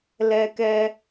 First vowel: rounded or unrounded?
unrounded